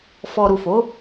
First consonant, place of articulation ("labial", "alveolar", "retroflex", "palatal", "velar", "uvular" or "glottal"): labial